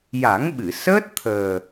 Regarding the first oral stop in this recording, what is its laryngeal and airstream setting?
implosive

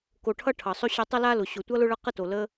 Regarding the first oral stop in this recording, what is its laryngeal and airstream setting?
plain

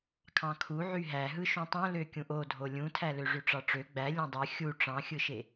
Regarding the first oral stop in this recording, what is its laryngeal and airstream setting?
aspirated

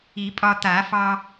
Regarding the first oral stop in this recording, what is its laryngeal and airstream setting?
ejective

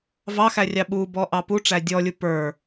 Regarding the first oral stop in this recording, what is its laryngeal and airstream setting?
implosive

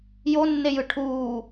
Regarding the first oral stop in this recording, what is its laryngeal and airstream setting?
aspirated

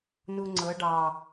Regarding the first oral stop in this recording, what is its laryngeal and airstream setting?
click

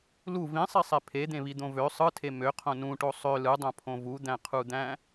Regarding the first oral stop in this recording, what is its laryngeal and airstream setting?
aspirated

